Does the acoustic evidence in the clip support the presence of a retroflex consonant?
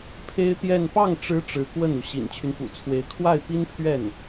yes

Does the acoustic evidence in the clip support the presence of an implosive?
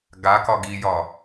no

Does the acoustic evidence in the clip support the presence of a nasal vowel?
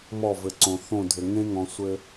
yes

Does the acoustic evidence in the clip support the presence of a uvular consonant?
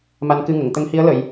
no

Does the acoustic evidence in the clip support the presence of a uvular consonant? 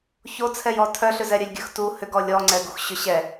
no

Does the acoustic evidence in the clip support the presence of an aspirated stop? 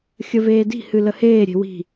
no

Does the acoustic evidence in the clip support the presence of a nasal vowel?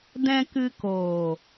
yes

